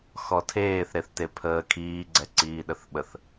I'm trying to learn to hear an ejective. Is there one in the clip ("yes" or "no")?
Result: no